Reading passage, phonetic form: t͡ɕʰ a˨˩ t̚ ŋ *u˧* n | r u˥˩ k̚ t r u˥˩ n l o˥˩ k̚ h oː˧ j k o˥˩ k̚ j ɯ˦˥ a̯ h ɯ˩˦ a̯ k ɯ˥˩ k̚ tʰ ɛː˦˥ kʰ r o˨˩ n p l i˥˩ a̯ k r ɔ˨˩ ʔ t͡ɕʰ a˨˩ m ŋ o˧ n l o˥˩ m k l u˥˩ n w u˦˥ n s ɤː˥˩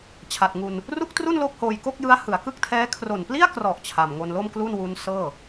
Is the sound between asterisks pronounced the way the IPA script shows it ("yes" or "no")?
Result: yes